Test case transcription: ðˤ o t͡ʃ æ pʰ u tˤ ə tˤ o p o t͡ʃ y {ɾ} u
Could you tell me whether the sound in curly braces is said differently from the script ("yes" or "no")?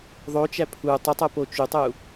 yes